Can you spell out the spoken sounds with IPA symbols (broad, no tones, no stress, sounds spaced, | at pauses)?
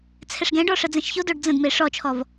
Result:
t͡sʰ ɛ ʂ ɡ ɛ̃ ɖ ɔ ʂ ə d͡z ɛ̃ ʃ ç o d o ɖ d͡z ə̃ d m e ʂ ɔ t͡ʃʰ ɔ v